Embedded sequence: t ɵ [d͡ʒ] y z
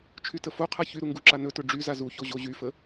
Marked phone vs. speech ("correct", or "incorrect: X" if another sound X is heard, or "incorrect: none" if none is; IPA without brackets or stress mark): incorrect: ɖ͡ʐ